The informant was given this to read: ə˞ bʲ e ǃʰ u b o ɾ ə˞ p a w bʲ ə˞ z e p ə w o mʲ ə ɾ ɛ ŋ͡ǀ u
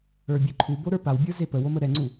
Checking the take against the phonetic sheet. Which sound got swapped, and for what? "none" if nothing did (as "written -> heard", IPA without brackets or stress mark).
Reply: mʲ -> m